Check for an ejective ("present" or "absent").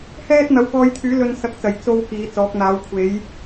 absent